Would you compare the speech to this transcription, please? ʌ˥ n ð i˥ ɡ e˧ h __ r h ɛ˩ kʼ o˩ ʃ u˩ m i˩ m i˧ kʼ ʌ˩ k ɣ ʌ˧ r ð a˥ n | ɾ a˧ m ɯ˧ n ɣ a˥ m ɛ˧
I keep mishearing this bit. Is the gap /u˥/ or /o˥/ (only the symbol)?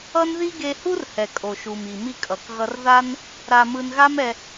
u˥